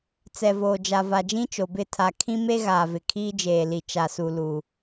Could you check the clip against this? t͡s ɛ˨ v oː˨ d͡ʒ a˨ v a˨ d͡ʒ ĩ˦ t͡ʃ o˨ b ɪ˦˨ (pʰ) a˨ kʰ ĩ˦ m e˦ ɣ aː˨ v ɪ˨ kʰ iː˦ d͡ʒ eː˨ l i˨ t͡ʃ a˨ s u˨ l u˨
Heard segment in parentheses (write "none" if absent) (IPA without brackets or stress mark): tʰ